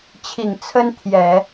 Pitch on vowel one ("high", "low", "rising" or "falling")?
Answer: low